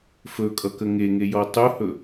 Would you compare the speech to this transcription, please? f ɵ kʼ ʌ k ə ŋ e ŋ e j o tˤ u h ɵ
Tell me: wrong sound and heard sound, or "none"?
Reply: o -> ɔ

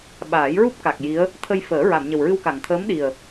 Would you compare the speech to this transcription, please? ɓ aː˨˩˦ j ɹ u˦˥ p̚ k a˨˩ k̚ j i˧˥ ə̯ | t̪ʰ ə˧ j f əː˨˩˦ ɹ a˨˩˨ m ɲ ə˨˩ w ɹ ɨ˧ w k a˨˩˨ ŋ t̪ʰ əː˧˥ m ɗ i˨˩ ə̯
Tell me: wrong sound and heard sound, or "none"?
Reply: none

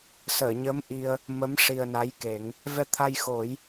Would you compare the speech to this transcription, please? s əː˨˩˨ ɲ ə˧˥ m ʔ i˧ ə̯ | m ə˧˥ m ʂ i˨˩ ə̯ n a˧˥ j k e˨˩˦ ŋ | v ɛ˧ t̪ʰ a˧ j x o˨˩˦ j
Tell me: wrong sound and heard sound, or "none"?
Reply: none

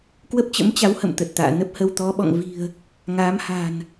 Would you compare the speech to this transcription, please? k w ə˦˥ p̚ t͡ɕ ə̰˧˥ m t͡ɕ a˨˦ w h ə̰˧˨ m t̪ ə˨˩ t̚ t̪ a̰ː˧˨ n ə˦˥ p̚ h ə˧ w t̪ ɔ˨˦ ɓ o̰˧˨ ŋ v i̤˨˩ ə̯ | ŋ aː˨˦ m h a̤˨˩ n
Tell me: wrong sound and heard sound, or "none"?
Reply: o̰˧˨ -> ɔ̰˧˨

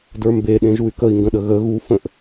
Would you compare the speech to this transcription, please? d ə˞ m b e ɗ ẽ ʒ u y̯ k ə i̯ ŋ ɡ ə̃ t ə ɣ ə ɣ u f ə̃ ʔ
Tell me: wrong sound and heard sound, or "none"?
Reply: t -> ɗ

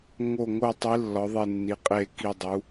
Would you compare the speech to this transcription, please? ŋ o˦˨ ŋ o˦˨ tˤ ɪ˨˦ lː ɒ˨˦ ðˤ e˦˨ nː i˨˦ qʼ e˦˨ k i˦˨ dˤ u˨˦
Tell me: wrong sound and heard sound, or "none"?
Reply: ɪ˨˦ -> i˨˦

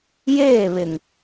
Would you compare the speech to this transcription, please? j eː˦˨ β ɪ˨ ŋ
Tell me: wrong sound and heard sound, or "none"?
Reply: none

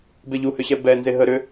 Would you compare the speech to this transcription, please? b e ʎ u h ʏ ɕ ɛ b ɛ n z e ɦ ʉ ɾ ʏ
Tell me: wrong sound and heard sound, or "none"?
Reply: ʉ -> ə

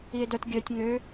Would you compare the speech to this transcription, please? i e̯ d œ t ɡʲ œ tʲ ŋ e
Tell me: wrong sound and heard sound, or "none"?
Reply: e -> ø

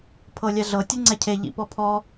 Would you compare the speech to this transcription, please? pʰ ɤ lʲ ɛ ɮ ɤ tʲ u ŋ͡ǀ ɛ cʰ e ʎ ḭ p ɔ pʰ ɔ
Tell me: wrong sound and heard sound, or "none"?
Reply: none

